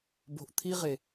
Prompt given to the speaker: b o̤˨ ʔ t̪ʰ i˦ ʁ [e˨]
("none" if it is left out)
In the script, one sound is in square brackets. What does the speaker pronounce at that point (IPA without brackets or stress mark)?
e˨